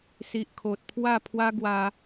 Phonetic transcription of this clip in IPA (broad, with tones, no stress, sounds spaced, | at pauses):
s i˨ ʔ kʰ o˨ t̚ pʰ w a˥˧ pʰ w a˦ ɡ w a˧